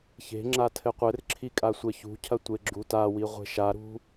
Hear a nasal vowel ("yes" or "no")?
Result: no